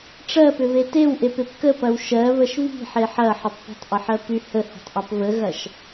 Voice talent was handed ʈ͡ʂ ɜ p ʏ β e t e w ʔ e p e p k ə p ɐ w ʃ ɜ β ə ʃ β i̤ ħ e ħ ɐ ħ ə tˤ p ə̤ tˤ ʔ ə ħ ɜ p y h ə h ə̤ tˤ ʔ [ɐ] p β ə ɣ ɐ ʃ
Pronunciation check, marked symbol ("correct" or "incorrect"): correct